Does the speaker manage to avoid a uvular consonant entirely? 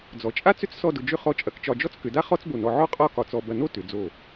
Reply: no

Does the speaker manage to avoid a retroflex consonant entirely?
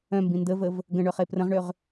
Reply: no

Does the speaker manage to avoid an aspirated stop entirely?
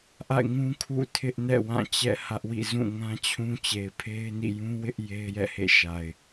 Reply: no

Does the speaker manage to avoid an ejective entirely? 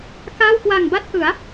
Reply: yes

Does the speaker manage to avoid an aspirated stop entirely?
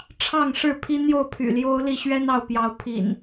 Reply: no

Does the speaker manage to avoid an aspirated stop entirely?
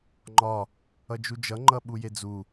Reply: yes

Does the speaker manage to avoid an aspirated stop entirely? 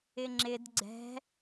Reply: yes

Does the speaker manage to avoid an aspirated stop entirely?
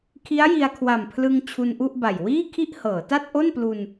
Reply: no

